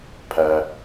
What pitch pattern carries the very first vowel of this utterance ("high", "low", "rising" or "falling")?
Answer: low